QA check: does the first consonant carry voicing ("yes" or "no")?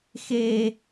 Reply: no